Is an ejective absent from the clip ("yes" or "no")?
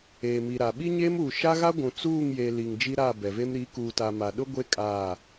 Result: no